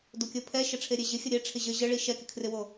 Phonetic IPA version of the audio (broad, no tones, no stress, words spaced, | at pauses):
dokʲəpʰɛ ʃəʈ͡ʂʰeɾʲeʑɪ xʲəɾʲɛ ʈ͡ʂʰɪʑə ʑəɭi ʃɛkɪkʰrɪwo